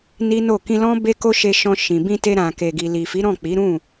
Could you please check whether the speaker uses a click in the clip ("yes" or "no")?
no